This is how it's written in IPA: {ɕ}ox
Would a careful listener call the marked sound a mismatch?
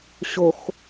no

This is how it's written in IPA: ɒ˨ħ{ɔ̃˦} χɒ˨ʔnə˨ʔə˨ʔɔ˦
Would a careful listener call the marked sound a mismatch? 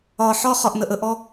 yes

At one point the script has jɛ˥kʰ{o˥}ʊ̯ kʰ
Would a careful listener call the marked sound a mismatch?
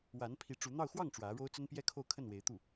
yes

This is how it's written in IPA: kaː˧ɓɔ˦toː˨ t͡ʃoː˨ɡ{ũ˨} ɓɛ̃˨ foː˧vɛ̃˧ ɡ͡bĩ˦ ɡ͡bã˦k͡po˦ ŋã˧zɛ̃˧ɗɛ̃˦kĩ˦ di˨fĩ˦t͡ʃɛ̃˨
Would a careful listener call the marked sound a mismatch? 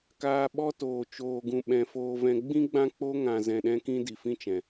no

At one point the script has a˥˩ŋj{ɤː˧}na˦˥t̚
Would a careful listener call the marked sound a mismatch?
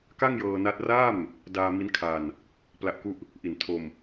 no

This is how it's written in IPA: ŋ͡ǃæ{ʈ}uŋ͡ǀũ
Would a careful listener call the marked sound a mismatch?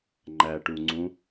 no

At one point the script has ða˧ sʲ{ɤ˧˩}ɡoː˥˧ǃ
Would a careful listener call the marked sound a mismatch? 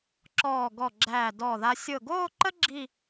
no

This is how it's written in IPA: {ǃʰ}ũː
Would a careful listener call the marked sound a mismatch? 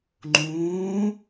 yes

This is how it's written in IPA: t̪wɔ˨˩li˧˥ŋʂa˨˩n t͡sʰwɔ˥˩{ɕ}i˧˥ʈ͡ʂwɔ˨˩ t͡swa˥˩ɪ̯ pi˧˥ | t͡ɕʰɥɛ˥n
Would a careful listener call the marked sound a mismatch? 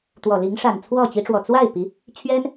yes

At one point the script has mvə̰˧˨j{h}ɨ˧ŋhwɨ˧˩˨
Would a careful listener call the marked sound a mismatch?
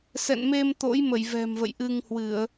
yes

